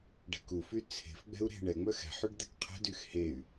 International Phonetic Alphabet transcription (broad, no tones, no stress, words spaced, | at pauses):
ɖɛ̤kufy t͡sʰe̤fɡ͡bɛ̤u̯ ɾe̤ ɳɛŋ͡mœx ɛ̤ħyɖ d̪ɛkqʰɛ̤dyx hey̯